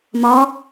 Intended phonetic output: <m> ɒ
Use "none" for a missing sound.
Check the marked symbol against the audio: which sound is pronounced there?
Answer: m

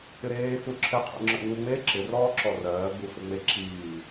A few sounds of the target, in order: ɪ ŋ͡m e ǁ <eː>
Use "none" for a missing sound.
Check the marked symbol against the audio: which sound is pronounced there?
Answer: iː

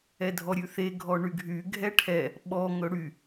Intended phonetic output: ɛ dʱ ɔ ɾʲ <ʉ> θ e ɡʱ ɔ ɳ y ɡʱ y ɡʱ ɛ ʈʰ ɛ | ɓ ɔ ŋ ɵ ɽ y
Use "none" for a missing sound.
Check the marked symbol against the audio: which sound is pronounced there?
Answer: ʉ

